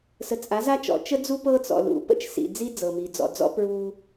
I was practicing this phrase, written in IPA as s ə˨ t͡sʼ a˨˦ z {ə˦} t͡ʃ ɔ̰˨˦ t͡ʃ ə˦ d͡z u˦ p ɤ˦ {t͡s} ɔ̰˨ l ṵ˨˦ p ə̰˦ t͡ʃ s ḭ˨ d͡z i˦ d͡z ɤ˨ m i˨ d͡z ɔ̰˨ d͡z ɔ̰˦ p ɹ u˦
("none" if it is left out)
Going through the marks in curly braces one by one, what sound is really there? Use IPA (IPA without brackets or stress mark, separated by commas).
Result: a˦, t͡s